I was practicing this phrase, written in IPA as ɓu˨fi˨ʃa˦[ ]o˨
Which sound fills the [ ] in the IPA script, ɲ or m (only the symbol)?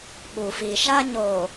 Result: ɲ